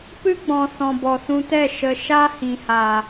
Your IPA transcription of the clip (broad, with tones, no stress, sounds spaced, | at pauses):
p ɨ˦ ɡ͡b ɔ̃˨ s ɔ̃˨ b ɔ˨ s ũ˧ t ɛ˦˨ ʃ ə˨ ʃ a˦ h ĩ˨ h a˨